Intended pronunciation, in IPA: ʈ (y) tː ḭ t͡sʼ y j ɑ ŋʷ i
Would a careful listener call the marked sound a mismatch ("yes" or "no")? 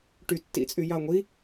no